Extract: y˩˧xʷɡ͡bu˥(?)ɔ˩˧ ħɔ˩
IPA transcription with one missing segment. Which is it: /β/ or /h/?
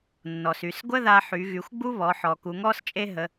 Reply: β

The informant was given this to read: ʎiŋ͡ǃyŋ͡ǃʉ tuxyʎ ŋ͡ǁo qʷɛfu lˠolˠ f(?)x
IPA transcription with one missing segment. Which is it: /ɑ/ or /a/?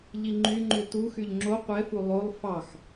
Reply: ɑ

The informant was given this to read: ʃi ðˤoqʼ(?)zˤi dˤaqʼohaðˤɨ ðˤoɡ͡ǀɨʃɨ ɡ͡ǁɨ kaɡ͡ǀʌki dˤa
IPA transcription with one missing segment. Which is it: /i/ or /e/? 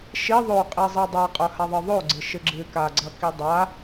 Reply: i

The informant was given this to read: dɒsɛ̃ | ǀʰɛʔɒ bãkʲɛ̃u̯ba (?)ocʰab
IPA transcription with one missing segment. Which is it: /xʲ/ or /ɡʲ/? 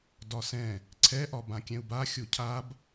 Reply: xʲ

